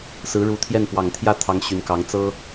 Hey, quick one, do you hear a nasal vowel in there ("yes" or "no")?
no